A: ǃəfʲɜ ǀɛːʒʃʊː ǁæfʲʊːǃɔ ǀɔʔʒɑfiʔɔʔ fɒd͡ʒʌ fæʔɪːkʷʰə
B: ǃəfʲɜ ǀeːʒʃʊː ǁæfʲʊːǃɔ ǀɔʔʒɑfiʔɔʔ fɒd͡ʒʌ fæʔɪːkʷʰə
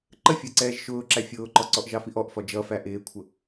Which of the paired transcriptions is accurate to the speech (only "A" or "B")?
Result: A